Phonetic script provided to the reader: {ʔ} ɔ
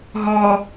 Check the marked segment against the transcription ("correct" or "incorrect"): incorrect